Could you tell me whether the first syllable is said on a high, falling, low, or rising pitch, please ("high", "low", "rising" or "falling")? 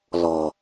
low